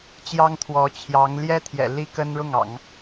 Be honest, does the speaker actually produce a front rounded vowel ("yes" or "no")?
no